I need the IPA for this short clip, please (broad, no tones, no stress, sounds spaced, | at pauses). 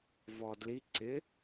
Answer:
v ɔ d l i ǀ ɪ